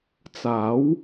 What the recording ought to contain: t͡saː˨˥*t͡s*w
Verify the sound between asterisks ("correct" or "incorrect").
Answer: incorrect